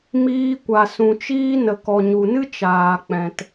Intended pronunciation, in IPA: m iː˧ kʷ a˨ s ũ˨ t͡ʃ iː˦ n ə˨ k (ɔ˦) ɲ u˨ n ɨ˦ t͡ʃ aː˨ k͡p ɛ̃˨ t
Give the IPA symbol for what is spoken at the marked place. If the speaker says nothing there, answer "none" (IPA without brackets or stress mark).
ɔ˨